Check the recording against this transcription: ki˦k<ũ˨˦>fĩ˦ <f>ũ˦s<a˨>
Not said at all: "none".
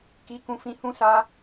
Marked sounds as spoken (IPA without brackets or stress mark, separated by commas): ũ˦, h, a˦